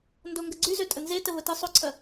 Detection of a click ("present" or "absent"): present